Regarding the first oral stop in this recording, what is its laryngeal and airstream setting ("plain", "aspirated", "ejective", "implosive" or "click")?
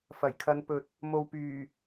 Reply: aspirated